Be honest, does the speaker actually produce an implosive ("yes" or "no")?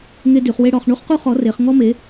no